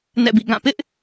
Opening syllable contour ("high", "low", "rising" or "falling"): falling